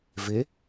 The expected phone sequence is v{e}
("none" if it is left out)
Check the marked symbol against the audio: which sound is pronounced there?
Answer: e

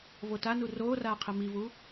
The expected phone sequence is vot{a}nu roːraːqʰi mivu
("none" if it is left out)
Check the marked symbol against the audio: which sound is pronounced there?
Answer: a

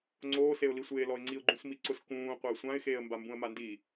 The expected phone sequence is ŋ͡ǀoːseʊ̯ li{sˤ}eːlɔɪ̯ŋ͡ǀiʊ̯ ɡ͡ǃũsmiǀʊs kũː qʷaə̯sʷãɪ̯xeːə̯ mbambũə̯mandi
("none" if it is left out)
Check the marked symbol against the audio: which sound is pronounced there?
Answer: sʷ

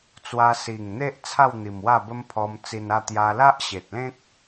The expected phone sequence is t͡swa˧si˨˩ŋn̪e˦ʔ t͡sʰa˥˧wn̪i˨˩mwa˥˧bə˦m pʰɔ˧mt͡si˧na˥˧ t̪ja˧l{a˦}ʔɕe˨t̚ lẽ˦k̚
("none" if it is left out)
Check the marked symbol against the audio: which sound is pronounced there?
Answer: a˦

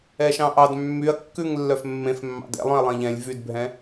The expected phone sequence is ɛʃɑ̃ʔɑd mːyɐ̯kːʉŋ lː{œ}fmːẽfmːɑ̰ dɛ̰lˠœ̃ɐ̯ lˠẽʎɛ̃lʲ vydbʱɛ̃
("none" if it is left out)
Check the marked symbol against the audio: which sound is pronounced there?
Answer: œ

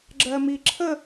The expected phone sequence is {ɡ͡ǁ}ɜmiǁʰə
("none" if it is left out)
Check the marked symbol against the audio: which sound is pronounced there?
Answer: ɡ͡ǁ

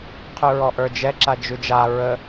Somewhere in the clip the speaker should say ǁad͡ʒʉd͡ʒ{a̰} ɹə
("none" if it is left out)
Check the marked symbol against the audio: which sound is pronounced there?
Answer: a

